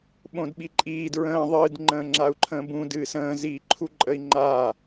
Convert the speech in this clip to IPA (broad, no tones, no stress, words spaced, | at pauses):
ɓõdɓiǃʼiː dɹə̃ː ðˤɨd ŋ͡ǃə̃ːŋ͡ǁau̯ǃʰə̃ːbũ dɨːsə̃ː ziːǃʰuǃʼəi̯ŋ͡ǃaː